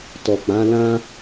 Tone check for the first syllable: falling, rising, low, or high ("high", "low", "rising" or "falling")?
low